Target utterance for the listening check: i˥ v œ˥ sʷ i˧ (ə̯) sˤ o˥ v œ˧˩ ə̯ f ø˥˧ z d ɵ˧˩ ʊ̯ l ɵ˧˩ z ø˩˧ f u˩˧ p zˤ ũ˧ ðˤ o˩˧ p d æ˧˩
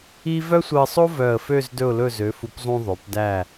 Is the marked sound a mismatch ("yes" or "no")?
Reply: no